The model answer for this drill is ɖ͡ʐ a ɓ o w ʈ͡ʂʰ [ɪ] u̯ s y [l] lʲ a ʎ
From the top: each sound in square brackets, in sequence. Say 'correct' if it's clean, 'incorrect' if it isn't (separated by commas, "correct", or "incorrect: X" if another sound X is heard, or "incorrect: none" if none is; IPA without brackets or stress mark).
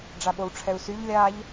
incorrect: ɛ, incorrect: ʎ